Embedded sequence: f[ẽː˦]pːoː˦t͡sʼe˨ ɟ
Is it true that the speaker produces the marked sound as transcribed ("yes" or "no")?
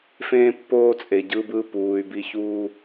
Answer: yes